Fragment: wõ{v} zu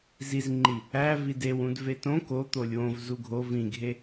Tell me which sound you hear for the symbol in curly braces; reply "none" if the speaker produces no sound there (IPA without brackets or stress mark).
v